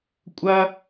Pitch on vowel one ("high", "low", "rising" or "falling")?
high